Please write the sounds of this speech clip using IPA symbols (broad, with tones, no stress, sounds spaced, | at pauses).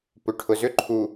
p ʏ˨ ʈʰ ʊ˨ z ʏ˦ ǃʰ u˨